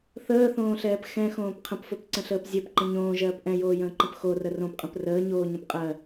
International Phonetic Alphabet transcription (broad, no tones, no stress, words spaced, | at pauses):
θəːθõːɬɛːp xɛ̃xõːp qʰə̃pfopǀə̃ɬəːp zʲɜpǃə̃ ɲõːʒɜːp ʔɛ̃joːjə̃ːǃə̃p xorə rõpqʼə̃p rəːɲoːɲə̃p qʼɜ